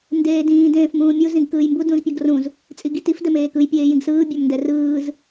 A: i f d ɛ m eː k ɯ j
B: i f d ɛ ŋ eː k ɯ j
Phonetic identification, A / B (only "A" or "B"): A